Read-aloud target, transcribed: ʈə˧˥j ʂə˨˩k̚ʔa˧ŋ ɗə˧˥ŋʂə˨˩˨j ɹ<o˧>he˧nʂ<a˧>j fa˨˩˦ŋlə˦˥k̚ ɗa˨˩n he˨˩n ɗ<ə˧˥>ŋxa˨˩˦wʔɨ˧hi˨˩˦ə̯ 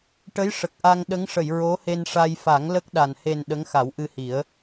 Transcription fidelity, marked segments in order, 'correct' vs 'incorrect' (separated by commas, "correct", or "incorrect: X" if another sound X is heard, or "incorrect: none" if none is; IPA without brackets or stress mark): incorrect: o˧˥, correct, correct